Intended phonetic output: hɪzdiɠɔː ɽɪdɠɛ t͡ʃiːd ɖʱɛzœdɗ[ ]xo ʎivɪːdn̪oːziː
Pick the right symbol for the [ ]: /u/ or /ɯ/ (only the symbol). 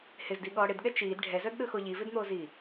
ɯ